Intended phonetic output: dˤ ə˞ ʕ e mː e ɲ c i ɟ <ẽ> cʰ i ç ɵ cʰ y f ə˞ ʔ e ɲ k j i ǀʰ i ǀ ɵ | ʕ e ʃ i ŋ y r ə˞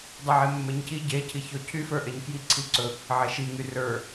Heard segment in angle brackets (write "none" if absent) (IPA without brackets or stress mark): e